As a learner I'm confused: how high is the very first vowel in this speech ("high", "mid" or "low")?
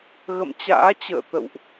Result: mid